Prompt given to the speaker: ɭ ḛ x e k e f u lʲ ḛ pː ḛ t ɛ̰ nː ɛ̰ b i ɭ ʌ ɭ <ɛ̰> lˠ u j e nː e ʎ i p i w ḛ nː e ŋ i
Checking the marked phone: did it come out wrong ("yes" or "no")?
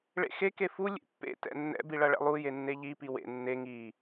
no